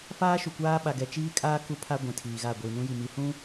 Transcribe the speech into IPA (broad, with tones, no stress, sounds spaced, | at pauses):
f aː˦ ʃ u˨ kʷ aː˦ ɓ a˨ ɡ ɛ˨ t͡ʃ iː˦ kʼ aː˦ k u˦ pʰ a˦ ɡʷ ĩ˨ tʰ iː˨ ɣ a˦˨ ɡʷ iː˨ n ũ˦ j i˨ m i˨ h ũ˦